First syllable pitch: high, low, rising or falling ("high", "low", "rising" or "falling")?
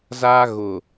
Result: high